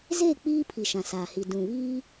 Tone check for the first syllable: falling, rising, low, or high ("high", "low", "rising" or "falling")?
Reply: falling